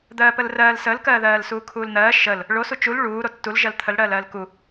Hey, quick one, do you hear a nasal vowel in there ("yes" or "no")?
no